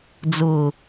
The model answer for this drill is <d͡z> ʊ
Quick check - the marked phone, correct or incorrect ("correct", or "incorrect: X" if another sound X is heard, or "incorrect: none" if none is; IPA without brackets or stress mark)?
correct